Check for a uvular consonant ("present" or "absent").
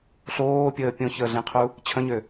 present